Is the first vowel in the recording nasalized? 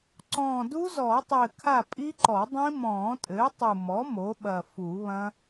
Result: yes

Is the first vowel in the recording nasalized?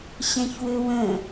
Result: yes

